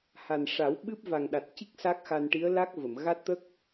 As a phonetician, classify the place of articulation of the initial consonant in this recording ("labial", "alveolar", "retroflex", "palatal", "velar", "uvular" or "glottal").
glottal